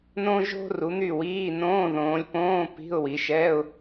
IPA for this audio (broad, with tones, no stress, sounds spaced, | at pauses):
n õ˥ ʒ o̤˥ r u˨˦ n̪ y˥˨ w iː˧˥˧ n õː˧˥˧ ð õː˨˦ lʲ p õː˧˥˧ p i̤˧˥˧ ʊ̯ w i˨˦ ʃ ɛ˧˥˧ ʊ̯